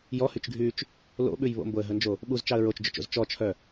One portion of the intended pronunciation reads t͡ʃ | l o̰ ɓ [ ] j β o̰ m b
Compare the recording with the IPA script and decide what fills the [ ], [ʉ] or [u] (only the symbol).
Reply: ʉ